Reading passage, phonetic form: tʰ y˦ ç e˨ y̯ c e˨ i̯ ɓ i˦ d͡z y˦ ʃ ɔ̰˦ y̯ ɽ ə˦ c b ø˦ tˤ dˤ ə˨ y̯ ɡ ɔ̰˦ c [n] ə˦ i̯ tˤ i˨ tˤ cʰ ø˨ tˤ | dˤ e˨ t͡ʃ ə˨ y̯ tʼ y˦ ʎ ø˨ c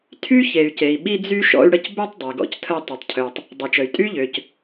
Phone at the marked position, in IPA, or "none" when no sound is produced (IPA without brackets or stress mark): tʰ